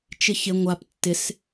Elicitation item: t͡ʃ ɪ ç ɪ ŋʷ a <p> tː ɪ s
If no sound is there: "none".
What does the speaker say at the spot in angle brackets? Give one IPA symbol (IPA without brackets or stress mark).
p